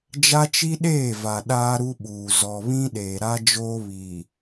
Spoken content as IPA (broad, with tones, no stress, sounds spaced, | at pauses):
d͡ʒ a˦ t͡ʃ i˦ ɗ eː˦˨ v a˨ ɗ aː˦ ɾ u˦ ɓ uː˨ z ɔ˨ β ĩ˦ ɗ eː˨ ɾ a˦ d͡ʒ oː˦ β i˨